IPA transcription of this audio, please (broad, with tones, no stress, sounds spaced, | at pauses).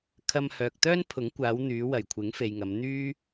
kʰ ɐ˧ m h œː˨ k̚ t̪ œː˥ n pʰ ʊ˨˥ ŋ kʷ aː˨˧ w n̪ yː˨˧ w ɐ˨˩ j kʷʰ ɪ˨˥ ŋ f e˨ j ŋ ɐ˨˧ m n̪ yː˥